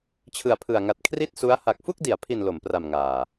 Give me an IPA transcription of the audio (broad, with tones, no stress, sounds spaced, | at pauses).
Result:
t͡ɕʰ ɯ˨˩ a̯ pʰ ɯ˨˩ a̯ ŋ a˨˩ t̚ kʰ r i˥˩ t̚ s u˦˥ a̯ h a˨˩ k̚ f u˥˩ k̚ d i˩˦ a̯ pʰ i˨˩ n l o˩˦ m p r a˨˩ m ŋ aː˨˩